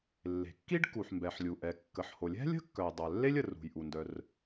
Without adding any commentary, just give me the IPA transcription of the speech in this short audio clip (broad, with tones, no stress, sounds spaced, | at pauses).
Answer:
lː e̤˩ kː i˥ ɖ k u˩ ħ m b ɛ˩ ħ lʲ u˩ ʔ ɛ˩ kː ə˩ ħ h o˩ lʲ ɛ̤˥ lʲ ə̤˥ kː œ˩ j dˤ œ˩ lː e˥ lʲ ə˩ r ṳ˩ j ʔ u˩ n d œ˩ r